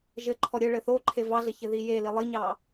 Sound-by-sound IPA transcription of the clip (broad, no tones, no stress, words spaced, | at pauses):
ʒɘǃʰɔ ɾʲɘɭɘ θoǃʰe vɑɮɘ çɘðijeli lˠiɲɑ